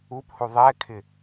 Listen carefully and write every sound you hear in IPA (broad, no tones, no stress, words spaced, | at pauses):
uphu ðˤɛkʰɪ